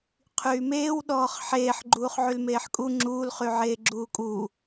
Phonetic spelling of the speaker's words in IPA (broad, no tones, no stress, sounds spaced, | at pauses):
qʰ yː m eː w ɗ ɔː χ ħ eː ħ ɡ͡ǃ uː χ ʕ y l m eː ħ kʼ u ŋ͡ǁ uː l χ y ʕ eː ɡ͡ǁ uː kʼ u